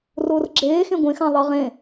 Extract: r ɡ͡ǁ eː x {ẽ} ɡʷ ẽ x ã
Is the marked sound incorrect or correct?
correct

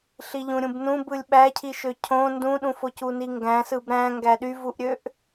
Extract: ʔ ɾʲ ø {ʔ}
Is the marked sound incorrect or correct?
correct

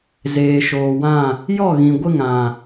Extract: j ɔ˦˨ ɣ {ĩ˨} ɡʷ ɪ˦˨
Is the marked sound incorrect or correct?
correct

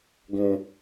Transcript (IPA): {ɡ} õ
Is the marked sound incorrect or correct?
correct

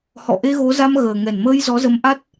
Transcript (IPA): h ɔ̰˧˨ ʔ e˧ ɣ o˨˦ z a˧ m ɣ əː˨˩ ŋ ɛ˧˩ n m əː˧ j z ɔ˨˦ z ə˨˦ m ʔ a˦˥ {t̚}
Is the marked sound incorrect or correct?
correct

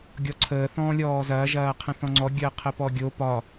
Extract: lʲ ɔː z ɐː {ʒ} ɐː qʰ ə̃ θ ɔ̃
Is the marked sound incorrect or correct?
correct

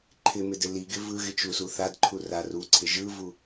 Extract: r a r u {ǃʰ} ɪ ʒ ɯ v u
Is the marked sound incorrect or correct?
incorrect: ǀʰ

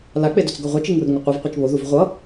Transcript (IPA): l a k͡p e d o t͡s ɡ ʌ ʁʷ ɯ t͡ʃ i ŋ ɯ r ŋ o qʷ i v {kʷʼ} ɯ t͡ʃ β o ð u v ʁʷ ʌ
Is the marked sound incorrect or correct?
incorrect: qʷ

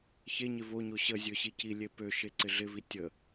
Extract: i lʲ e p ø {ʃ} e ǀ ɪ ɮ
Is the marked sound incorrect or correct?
correct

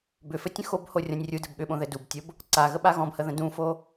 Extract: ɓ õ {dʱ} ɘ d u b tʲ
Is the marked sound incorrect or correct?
incorrect: ð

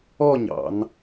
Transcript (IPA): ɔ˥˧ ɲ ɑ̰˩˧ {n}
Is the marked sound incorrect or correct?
correct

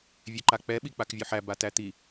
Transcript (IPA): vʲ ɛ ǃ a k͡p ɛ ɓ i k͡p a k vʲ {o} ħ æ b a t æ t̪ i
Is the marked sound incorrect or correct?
correct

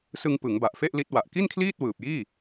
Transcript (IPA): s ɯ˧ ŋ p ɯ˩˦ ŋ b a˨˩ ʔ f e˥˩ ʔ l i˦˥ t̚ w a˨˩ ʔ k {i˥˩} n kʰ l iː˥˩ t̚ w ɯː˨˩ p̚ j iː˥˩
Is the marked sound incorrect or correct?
correct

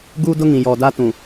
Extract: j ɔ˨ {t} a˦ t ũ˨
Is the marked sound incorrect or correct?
incorrect: d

